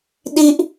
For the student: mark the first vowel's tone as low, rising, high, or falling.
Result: high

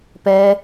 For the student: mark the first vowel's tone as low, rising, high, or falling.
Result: high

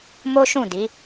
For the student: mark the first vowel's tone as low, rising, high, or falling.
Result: high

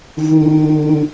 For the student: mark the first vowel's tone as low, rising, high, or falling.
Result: high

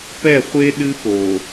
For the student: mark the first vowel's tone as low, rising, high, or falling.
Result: falling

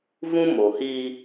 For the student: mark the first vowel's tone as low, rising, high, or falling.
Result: high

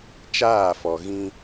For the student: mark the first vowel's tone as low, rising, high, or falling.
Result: falling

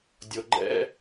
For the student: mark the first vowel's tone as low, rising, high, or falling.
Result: low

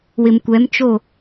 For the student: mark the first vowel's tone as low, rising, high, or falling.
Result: low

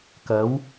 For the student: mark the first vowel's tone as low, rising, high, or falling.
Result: rising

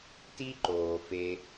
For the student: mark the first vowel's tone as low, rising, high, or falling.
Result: high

